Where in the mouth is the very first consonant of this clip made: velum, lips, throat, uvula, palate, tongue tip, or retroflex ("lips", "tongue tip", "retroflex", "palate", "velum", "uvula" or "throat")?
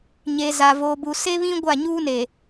palate